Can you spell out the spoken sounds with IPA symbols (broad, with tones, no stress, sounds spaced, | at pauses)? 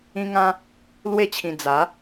ĩ˦ ŋ ã˦ | l w e˥˧ t͡ɕʰ ĩ˧ d͡z a˨˦